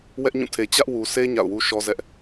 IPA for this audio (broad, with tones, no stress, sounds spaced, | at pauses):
w ɛ˦ ʔ ɲ ũ˦˨ tʰ e˨ t͡ɕ ä˦ ʔ w u˨ sʰ e˦ ɲ a̰˦˨ ʊ̯ w u˦ ʃ ɔ˦ z ɛ˦ ʔ